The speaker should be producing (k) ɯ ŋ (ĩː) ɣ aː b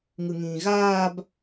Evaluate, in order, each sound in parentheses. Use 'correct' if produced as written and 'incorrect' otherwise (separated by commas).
incorrect, correct